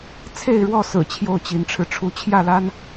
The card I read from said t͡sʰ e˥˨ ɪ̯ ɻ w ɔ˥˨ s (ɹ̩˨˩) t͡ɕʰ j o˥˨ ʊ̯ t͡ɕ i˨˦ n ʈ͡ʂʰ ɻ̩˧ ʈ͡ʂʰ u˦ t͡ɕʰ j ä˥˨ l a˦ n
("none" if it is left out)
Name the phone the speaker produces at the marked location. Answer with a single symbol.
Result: ɹ̩˨˩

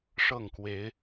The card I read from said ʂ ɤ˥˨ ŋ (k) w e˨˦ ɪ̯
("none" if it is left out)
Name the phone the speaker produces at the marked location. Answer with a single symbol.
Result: k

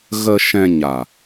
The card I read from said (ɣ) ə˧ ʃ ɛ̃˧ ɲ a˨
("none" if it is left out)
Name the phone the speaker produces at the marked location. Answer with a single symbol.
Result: ɣ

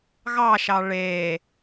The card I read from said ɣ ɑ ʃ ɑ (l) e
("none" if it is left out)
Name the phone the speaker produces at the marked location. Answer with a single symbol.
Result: ɭ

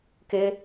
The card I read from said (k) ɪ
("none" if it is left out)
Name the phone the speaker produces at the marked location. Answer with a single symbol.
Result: k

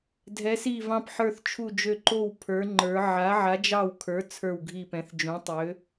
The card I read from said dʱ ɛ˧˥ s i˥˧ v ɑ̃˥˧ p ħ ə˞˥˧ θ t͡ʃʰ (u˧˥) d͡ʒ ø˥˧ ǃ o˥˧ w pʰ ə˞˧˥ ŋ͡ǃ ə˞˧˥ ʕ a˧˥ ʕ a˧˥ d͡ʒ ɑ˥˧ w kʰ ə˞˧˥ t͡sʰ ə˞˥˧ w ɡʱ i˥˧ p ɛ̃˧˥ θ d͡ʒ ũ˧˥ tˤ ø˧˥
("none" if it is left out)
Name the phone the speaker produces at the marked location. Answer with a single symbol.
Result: u˥˧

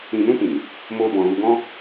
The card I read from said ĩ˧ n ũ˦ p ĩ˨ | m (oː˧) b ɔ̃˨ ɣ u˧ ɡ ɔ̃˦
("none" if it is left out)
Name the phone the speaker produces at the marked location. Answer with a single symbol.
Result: oː˧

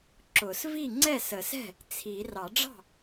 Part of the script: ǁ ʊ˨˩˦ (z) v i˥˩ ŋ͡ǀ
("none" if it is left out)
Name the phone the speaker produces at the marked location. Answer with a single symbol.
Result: s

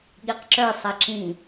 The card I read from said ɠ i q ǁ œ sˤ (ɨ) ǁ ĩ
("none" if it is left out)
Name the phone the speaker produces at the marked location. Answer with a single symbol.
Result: ɛ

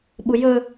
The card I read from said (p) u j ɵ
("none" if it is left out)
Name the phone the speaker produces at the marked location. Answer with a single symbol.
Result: ɓ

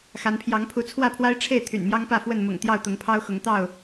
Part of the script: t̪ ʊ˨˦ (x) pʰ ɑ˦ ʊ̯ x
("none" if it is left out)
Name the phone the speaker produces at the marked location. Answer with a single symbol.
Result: ŋ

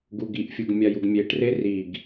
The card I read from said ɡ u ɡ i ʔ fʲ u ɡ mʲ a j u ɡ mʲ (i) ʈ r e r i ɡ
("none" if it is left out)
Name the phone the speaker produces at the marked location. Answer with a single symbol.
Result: e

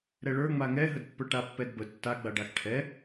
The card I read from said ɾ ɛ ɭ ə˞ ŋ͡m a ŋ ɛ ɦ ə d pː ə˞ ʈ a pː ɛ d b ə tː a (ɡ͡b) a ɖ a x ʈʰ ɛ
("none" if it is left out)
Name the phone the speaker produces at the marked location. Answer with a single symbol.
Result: ɡ͡b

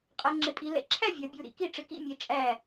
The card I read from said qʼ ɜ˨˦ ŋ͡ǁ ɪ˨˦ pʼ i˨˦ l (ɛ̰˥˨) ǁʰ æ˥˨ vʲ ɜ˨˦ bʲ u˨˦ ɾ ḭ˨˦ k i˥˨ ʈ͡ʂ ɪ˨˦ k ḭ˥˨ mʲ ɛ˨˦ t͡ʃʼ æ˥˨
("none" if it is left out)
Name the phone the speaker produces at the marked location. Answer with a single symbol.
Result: ɛ̰˨˦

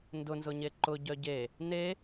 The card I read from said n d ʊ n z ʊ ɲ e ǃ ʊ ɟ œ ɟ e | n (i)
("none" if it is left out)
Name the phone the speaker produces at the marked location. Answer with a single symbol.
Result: e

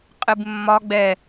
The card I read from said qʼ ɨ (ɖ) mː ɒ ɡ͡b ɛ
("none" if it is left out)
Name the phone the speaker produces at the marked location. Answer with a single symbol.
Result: b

